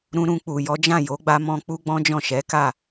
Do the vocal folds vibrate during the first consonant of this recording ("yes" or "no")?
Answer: yes